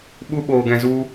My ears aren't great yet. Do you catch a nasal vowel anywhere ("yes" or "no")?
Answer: yes